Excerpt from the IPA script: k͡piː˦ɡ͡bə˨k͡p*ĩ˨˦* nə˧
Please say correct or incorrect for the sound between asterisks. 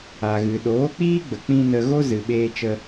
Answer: incorrect